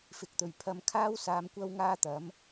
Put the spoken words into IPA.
fɪ˨k̚t̪ɵ˨ɥpʰɐ˧m kʰaː˥w saː˧mkʷɐ˥wŋaː˥t̪ɐ˨˥m

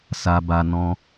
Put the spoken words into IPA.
sa˧ba˧ nɔ̃˧

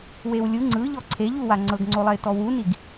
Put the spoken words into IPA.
wewlʲu ŋ͡ǀɯʎɔ ǀʰeʎuwa ŋ͡ǀɤɡŋ͡ǀolˠɛɪ̯ tɔwuniɡ

